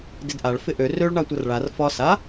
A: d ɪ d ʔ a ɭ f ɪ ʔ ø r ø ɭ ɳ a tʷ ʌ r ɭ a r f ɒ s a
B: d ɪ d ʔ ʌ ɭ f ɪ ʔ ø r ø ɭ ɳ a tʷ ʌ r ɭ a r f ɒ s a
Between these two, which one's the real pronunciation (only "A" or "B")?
A